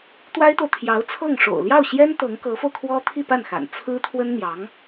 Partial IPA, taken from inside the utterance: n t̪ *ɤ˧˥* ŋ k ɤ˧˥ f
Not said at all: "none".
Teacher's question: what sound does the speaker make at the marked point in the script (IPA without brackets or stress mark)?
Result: ɤ˧˥